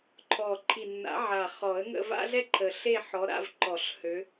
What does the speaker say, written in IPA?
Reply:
ǃʰɔ˨˩ ǃʰi˨˩nːa̰˨˩˦ ʕa˨˩ χɔ˨˩˦ə̯ŋə̰˥˧ va̰˥ɮɛ˥ǃʰə˨˩ ɬe˥˧ħɔ˨˦ɾa̰˥˧v ǃɔ˨˩˦ɬhø˨˦

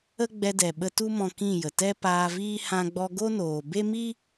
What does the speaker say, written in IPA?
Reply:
ə˦ɡ͡bɛ˧ dɛ˨ɓə˧ tu˦mɔ̃˧ kĩ˦˨jə˨ tɛ˦paː˧viː˦ hã˧ɡ͡bɔ˧ ɡo˦noː˨ be˦mi˦

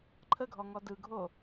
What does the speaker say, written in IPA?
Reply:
ǃʰəɡʱɔŋɔ dɯɡʱo

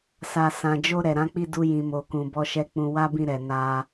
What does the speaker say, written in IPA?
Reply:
sa˧ sã˨d͡ʒo˧ ɾɛ˨ɾã˨˦k͡pi˦˨du˧ jĩ˨mo˨kũ˨ bɔ˧ʃɛ˧ k͡pũ˧ wa˦bĩ˦˨ɾɛ˨ na˧

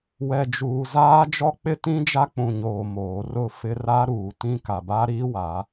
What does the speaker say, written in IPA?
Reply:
wɛ˨d͡ʒuː˨zaː˦ d͡ʒɔ˦k͡pɪ˦tĩ˦d͡ʒa˦ k͡pũ˨ɲoː˨ moː˨˦ rʊ˦˨fɪ˦ ra˦ɾuː˨tĩ˦ ka˨ba˦ɾiː˦wa˨˦

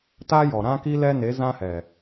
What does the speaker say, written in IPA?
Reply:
taː˦jɔ˨ ɾã˦ki˦ lɛ˦ne˨˦zã˦hɛ˨

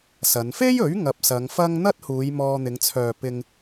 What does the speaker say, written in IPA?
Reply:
sɐ˨˧n fe˥jɵ˨˥ɥ ŋɐ˧p̚sɐ˨˧ŋfɐ˥ŋ n̪ɐ˥t̚huː˨˧j mɔː˧n̪ɪ˨˧ŋt͡sʰœː˨ pɪ˧ŋ

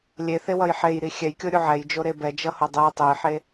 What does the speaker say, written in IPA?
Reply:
lʲeθewʌj ħejɾi xʲɛjkʲoɾʲu ʕɛjd͡ʒoɾe bɛd͡ʒʌho dˤe tˤejħe

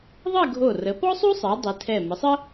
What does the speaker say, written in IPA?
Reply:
ðˤɜ˥˧ɡʱo˧˩ rə˩˧pɔ˥sˤu˥sˤɜ˩˧ dˤi˩˧tʰɛ˧˩ mə˩˧sˤə˥

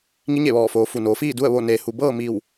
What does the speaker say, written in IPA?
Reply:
ŋi˧˥ɲe˧˩ʋɔː˧˩foː˩˧ fu˩noː˩˧fiː˥˨du˥˨ə̯ ʋo˧˩neː˩hu˩ bɤː˥˨mi˧˩w

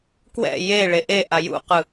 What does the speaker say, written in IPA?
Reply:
kwɛ̰ je ɭeʔeʔa jṵqɯ

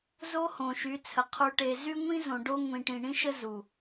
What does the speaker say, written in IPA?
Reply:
zo˦ hõ˨ʃy˨˦t͡sʰə˨ qʰu˨ʈe˨ zy˦ ŋʷĩ˦ zõ˨ ɖo˦ ŋʷĩ˨ʈĩ˨ɳĩ˦ʃə˦ zu˨

